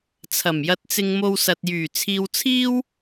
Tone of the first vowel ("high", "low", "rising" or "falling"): low